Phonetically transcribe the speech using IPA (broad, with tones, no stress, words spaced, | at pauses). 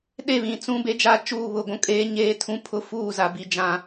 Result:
ɗe˦˨βĩ˨t͡sũ˦ be˦d͡ʒa˦ t͡ʃuː˦˨βʊ˦˨ɡʷũ˦ kʼeː˦ ɲeː˦tʰũ˦ pʰʊ˦fuː˦˨za˨ bi˦d͡ʒã˦